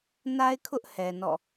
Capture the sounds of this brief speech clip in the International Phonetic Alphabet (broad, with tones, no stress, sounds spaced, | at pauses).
n a˦ ɪ̯ kʰ ʊ˦ ʔ h ɛ˨ n ɔ̰˦˨